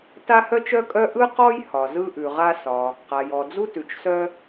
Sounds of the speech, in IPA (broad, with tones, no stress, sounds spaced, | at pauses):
t a˥ h œ˥ t͡ʃ œ˥ kʼ œ˥ ʔ ɯ˥ q ɔ˥ j h ɒ˩ z ɯ˥ ʔ ʉ˩ ʁ a˥ s ɒ˩ | q a˩ j ɔ˩ d͡z u˥ t ʉ˩ t͡ʃ s œ˥